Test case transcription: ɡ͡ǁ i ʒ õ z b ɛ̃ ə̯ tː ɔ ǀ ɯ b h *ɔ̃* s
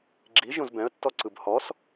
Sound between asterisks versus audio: incorrect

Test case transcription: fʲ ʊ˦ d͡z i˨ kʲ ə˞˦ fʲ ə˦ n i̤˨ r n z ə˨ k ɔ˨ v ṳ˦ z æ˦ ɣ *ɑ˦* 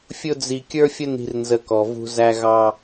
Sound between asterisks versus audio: correct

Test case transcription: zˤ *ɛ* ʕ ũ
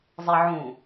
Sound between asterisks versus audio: correct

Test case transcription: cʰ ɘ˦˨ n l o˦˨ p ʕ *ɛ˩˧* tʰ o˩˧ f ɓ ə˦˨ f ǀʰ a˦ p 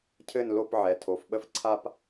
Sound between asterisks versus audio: correct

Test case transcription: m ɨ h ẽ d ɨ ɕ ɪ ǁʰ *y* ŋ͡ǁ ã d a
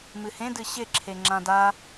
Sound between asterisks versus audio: incorrect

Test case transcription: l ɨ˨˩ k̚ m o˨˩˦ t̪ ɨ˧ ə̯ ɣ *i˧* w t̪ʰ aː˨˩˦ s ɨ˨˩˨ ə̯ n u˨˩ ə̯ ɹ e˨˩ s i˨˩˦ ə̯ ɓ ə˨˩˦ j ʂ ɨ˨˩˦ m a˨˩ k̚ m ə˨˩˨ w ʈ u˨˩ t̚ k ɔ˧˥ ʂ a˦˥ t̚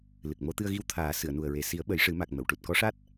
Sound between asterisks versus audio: correct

